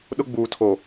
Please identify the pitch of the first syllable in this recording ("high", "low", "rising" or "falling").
high